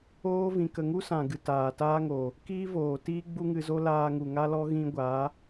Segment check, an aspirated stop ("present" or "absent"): absent